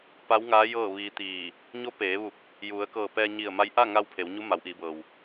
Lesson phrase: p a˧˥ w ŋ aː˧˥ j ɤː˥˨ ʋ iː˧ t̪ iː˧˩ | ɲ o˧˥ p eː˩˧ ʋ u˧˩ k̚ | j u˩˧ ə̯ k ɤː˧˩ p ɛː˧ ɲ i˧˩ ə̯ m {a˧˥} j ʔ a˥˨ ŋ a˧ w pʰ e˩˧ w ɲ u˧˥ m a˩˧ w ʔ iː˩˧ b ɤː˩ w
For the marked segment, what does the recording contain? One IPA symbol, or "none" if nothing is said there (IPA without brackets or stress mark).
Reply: a˧˥